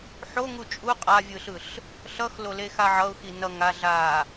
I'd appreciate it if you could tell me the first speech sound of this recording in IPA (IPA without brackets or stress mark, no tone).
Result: ħ